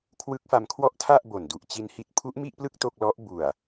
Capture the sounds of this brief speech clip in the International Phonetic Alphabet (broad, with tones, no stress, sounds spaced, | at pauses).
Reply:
kʰ w ɯ˦˥ k̚ f a˧ m kʰ w ɔ˥˩ ʔ tʰ a˥˩ ʔ b o˨˩ n d u˨˩ ʔ t͡ɕ i˧ n h i˦˥ t̚ pʰ u˦˥ ʔ m i˥˩ ʔ p l ɯ˥˩ k̚ t o˥˩ k̚ l ɔ˦˥ ʔ b u˨˩ a̯